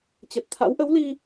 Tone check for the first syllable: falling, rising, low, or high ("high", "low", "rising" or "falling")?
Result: low